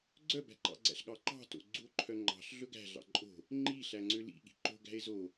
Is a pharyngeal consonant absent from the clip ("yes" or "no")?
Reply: yes